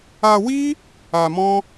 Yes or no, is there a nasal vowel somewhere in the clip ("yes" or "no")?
yes